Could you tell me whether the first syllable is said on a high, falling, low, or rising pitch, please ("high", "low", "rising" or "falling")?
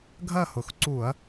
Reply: falling